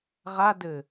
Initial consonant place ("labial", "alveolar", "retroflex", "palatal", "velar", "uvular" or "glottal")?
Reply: uvular